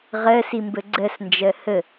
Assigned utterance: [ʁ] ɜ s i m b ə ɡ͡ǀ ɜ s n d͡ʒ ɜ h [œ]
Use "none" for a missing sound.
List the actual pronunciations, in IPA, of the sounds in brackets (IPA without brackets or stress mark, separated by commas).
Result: ʁ, ə